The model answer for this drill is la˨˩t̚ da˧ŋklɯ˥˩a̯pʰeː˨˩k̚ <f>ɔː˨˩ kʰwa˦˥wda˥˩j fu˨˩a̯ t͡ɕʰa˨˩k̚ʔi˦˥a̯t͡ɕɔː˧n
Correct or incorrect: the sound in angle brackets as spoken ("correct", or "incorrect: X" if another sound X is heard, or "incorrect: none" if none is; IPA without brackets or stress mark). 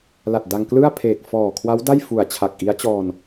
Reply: correct